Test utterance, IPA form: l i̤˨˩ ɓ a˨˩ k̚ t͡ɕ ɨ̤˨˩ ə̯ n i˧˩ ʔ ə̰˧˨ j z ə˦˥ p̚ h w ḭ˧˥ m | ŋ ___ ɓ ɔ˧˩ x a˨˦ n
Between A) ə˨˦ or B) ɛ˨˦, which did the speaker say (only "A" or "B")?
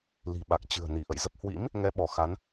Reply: B